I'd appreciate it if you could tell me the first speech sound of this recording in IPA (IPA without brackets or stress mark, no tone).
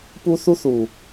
p